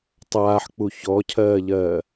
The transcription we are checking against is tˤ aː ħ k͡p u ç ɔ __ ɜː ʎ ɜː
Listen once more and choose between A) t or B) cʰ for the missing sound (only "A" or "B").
B